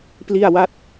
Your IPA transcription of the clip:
p l i˥˩ a̯ w a˥˩ t̚

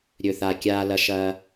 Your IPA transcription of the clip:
ɾʲ ɵ˨˩ θ a˨˩ kʲ aː˧ l ɐ˧ ʃ ɐː˧

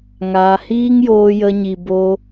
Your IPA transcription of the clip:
ŋ aː˧ h iː˦ ŋ j oː˧ j ə˧ ɲ i˨ b o˧

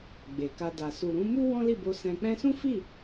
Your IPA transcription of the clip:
ɡ͡b e˨ k a˧ d a˨ s u˨ ɾ ũ˨˦ m u˦ w ɔ̃˦ l i˦˨ b o˧ s ɛ̃˧ k͡p ɛ̃˦ s ũ˦ f i˦˨

